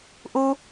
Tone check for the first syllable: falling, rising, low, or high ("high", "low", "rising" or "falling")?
high